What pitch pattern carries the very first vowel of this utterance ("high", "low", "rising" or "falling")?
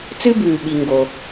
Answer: high